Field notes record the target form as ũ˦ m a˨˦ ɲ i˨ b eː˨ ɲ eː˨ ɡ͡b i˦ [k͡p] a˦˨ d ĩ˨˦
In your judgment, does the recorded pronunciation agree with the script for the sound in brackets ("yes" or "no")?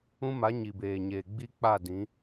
yes